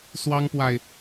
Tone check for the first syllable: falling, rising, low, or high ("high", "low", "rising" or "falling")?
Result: high